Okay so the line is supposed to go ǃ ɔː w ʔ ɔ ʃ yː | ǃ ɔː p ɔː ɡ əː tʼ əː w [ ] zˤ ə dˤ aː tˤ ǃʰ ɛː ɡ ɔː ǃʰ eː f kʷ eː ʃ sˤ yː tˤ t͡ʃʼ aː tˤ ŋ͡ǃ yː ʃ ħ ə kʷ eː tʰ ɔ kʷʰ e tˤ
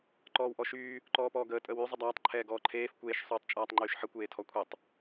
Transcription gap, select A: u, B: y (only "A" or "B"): B